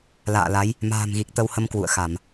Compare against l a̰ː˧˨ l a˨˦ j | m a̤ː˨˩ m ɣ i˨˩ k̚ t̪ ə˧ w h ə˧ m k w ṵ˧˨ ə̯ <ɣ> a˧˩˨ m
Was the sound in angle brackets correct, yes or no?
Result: no